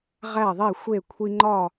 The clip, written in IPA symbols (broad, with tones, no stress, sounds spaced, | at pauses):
ʁ æ˥˩ ðˤ e˥˩ xʷ e˥˩ kʷʰ i˧ ŋ͡ǃ ɒ˥˩